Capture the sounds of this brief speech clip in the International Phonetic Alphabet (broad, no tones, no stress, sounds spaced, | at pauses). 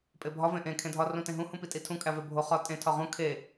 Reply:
pʼ e bʱ ɒ v ẽ ʔ ẽ kʰ ẽ dʱ ɒ r ũ t ẽ ɦ ũ h ũ p i tʼ i tʰ ũ kʼ æ v e bʱ o χ ɒ tʼ ẽ tʰ ɒ ʁ ũ kʰ e